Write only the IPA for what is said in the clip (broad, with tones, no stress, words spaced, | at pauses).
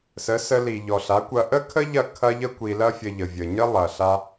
sə˨˦sə˧ li˨ʎɔ˨ɬa˨˦kʷɐ˧ ʔə˦kʰə˦ʎɐ˦˨ kʰɐ˦ʎə˦ kʷi˧lɐ˦fʲə˧ ʎə˨vʲə˨ ɲə˦lˠɐ˨ ɬa˦